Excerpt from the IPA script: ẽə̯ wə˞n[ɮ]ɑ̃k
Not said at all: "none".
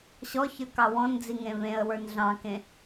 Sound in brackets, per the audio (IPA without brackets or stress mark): ɮ